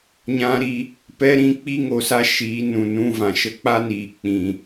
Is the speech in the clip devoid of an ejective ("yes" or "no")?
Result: yes